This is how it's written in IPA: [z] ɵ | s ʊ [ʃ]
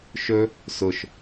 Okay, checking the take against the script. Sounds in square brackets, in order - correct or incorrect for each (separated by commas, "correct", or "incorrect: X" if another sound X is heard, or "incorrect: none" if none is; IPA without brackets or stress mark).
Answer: incorrect: ʃ, correct